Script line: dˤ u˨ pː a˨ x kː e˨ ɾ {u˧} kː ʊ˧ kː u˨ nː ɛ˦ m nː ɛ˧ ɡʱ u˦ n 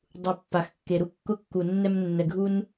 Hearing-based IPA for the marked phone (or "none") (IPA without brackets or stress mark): u˦